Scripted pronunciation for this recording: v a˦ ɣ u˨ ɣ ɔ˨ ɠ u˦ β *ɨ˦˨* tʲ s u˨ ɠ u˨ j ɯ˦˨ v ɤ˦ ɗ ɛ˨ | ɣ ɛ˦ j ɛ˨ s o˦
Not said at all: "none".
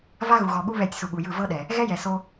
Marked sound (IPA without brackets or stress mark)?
ɛ˦˨